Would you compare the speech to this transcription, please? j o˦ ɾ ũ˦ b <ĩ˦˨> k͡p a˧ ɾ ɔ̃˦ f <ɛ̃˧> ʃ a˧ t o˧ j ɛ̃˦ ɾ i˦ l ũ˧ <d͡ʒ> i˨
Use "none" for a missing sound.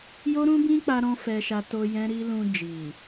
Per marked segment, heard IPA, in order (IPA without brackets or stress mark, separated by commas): ĩ˦, ɛ˧, d͡ʒ